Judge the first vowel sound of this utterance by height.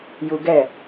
high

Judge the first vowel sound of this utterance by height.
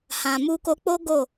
low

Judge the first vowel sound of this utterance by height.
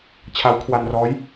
low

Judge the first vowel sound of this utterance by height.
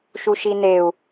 high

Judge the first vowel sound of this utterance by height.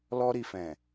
mid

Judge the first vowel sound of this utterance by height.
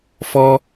mid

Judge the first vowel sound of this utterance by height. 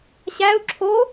low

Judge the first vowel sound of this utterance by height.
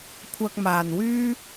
low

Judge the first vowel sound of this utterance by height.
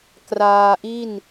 low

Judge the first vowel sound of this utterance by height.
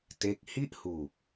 mid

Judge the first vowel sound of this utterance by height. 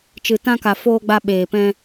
high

